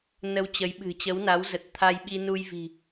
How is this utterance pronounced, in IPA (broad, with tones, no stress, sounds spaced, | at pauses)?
n ə˧ w t͡ɕ ə˨˦ j ɓ ɨ̤˨˩ t͡ɕ ə˨˦ w n a˨˦ w z ə˨˩ t̚ t̪ʰ a˧ j ɓ i˧ n u˧ j v i̤˨˩